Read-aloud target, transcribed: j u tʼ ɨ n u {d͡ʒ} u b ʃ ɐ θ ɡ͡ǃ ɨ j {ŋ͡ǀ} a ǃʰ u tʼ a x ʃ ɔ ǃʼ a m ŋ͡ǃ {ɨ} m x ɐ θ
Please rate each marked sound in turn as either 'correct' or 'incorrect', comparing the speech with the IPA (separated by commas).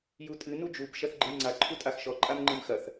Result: correct, correct, correct